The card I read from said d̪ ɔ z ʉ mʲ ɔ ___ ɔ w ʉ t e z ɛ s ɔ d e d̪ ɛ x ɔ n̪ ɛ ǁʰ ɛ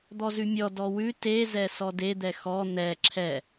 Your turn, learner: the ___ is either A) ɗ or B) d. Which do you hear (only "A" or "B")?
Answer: B